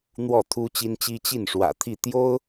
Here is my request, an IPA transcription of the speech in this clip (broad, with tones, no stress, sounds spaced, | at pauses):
n̪ w ɔ˥˩ t̪ʰ u˥ t͡ɕ i˥ n t͡ɕ i˥ t͡ɕ i˥˩ n ʂ w ä̰˨˩ t̪ʰ i˥˩ t̪ j o˥ ʊ̯